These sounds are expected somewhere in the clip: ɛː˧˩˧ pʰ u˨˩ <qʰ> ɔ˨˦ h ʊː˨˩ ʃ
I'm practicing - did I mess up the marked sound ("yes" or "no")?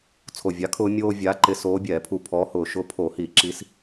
yes